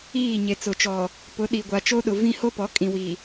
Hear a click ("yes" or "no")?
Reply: no